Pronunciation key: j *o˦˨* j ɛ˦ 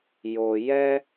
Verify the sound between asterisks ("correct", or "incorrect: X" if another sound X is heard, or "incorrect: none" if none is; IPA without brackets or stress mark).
incorrect: o˦